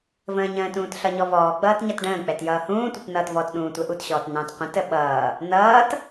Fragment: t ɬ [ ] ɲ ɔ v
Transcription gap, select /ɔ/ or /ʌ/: ʌ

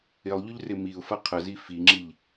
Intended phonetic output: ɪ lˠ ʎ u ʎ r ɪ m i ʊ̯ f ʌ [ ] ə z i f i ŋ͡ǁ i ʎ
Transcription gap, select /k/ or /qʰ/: qʰ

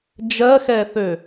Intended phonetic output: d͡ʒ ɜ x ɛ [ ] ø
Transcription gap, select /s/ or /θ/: θ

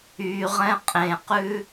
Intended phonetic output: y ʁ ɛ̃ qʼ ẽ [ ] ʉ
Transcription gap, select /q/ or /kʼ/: q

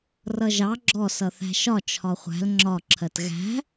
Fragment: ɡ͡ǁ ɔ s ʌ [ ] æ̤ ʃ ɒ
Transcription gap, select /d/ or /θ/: θ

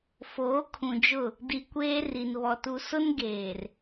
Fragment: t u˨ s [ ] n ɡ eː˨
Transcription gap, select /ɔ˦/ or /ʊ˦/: ʊ˦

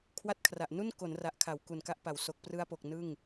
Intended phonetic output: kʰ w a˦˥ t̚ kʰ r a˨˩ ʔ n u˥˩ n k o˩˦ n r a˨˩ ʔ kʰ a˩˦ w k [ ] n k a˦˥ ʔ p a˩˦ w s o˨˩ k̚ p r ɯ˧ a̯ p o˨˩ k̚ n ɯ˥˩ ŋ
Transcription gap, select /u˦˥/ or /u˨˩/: u˨˩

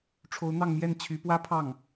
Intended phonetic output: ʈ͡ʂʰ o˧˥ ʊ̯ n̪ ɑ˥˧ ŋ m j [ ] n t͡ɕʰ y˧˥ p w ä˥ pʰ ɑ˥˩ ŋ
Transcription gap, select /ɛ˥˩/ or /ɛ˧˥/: ɛ˥˩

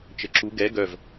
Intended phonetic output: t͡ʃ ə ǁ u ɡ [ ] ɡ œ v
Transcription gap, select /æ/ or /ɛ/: ɛ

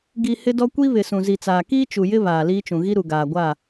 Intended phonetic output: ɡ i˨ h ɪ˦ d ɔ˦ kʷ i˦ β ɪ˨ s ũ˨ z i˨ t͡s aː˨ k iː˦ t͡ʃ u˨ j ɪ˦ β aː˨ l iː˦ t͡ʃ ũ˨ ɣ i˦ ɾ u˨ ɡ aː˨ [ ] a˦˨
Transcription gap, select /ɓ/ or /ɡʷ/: ɡʷ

